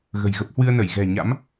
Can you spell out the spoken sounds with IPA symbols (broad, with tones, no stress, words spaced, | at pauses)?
ɣə̤˨˩jɣə˦˥p̚ hwɨ˧ə̯nə˧˩j ɣɛ̤˨˩ɲa̰˧˥m